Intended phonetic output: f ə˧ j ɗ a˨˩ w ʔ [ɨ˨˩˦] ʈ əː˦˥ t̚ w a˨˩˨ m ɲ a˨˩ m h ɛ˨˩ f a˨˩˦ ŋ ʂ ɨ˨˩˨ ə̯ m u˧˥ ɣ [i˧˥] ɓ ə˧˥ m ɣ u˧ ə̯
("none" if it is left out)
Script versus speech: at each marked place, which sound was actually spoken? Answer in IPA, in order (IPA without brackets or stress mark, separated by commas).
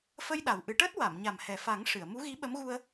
ɨ˨˩˦, i˧˥